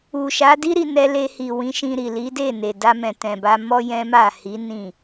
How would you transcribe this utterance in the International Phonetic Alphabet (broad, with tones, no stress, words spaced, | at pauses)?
u˨ʃa˨˦di˦ ɾi˧nɛ˧le˧hi˨ wĩ˨˦ʃĩ˧ ɾi˨ li˨˦de˦˨ne˨ da˧mɛ̃˨ tɛ̃˨ba˧ mɔ˦jɛ̃˦ma˦˨ hi˨˦ nĩ˦˨